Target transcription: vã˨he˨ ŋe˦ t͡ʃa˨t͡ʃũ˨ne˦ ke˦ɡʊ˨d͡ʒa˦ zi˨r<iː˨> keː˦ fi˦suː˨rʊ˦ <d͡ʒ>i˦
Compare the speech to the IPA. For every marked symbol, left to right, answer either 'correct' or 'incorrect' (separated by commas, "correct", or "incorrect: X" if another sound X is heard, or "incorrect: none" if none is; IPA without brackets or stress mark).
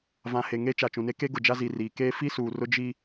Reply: correct, correct